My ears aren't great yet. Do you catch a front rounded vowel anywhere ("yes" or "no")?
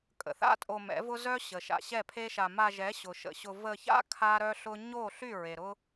yes